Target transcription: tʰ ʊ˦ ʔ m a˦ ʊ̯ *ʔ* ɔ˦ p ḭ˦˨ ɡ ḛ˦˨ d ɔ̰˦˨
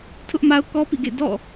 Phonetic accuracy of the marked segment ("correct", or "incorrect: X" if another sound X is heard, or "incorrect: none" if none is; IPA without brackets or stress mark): incorrect: k